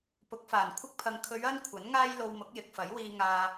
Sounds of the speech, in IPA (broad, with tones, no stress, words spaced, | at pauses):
pʊ˨˥k̚faː˨˩nkʷʰɪ˥k̚pʰɐ˧ŋ kʰɵ˨˧ɥ ɐ˥nkʷʰɐ˨˥n ŋaː˥jlo˧w mʊ˨˥k̚jɪ˨k̚fɐ˨˥jwiː˧ ŋaː˧